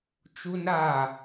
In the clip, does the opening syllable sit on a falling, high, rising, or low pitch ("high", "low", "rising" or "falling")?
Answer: high